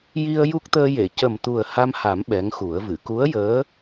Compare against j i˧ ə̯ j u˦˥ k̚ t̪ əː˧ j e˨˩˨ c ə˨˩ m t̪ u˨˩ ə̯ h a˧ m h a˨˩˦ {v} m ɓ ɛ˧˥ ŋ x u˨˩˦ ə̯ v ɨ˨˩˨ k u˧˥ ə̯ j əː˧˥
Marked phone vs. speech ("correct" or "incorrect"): incorrect